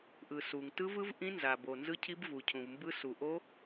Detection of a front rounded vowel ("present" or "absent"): absent